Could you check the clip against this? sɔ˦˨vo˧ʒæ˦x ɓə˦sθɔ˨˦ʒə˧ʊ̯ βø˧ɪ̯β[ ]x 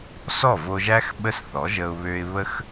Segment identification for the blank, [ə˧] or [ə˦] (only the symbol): ə˦